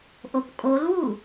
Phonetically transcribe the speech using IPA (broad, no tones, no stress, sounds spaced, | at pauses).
ʔ o p kʼ o l w u